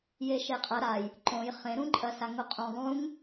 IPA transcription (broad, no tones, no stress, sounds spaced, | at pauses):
j e ʃ e qʼ ɐ ɾ a j | ǃ õ j χ ẽ ɾ ũ ǃʼ ɐ s a ŋ o qʼ õ ðˤ ũ ŋ